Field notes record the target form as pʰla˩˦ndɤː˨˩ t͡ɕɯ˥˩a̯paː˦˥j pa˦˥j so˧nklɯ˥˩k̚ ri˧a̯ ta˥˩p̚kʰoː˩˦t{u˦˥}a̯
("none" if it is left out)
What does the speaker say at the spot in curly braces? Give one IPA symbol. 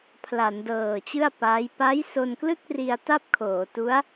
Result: u˦˥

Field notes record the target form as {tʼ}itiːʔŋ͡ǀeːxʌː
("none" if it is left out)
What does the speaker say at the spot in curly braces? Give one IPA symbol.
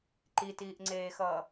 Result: ǃ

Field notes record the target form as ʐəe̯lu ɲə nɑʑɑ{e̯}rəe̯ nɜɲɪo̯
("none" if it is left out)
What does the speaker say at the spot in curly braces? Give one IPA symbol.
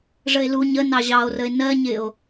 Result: o̯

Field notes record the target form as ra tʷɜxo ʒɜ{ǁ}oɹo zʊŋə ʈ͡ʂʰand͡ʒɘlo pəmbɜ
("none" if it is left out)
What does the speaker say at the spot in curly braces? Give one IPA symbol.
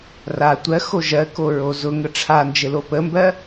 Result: k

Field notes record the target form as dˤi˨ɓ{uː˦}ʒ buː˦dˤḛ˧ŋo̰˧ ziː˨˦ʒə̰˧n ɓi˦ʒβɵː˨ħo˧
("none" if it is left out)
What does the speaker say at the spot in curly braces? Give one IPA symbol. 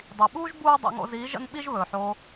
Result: uː˦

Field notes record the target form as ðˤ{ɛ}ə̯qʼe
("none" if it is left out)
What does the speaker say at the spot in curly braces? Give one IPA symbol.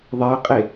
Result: e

